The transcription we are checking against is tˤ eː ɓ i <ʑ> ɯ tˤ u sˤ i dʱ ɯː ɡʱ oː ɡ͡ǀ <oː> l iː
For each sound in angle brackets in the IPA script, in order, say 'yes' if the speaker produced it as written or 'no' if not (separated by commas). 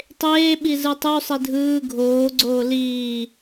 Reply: no, yes